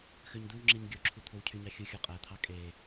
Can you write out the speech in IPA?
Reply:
xøɲd̪ɯwŋ͡ǁiɲ ɡʲoǁʰu t̪ʰowcʰyɲɑ xʲuxʲo qʼæt̪ʰɑ kʼe

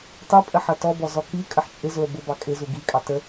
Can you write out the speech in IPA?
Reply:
tˤupʼə ħʌtɔbɔ zɔkikʼəħ t͡ʃʼɪzʊə̯ bʊbɑ kʼɪ zuɡikʼɑ tə

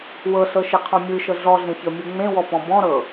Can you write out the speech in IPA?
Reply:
wɤɬɤʃeqʰɔ̃ mʲɯʃɤ ɮɔɮẽçɤmʲɯ ŋ͡mẽwɔpɔ̃ bɔ̃ɾɤ

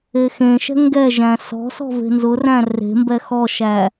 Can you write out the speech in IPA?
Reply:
exẽʃɛ̤ ŋɡɛʒæ̃ sɔ̤ sɔ̤ve̤nzʊræ̃ re̤mbɛ xɔʃæ

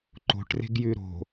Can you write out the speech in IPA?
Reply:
ǃo̤ʈre̤ɡjʉ ɾo̤

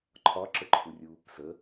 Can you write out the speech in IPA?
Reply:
ǃʰɒǁəǃʰurʲu | sə

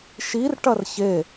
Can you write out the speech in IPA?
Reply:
ʃir ʈɐrçe

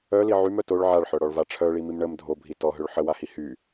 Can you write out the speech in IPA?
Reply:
œli ʕymœ toɭ ʕaɭħœɽɔɭva ʈ͡ʂʰœɭimim ɳəm dʱobʱi tɔɦøɭ ħəwahi hy

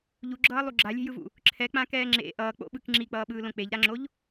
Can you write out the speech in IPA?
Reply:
ʎuɡ͡ǁʌːlˠu ɡ͡ǁalʲe̤jɯvṵ | ǁʰɛk͡pãkɛː ŋ͡ǁḛ ʔʌː k͡po̰ɓɯk ŋ͡ǁik͡pʌːɓɯːlõ k͡peʎɾaŋ͡ǁoʎ

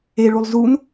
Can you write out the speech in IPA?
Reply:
eɭulˠ zun

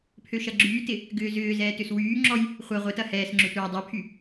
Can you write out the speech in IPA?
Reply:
pʰøʃɐɡ͡ǁyːtɪ | ɡʏːzʏːzɛː tʏswyːŋ͡ǁɔj | χʷɐ ʁʷɪtɐ hɛːsŋ͡ǁʏ tʷa dˤɐpʰy

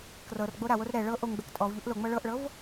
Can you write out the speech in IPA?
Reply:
krɤrɡ͡bo ɾawor ɾɛ ɭɤ ʔoŋɡ͡bɛk tʼɔv ʎuʔloŋ͡mɤ ɭɤʔɭɤv

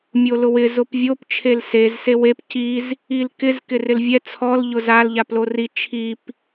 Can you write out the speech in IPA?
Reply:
mʲolʊwɪ zʊpvʲop t͡ʃʰelsez sewep ciz | ilkɪz kɪrɪlvʲɛ t͡sʰɔl ʎʊzal ʎaplori t͡ʃʰip

